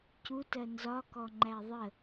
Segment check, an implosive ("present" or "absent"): absent